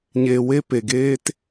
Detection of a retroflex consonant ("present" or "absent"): absent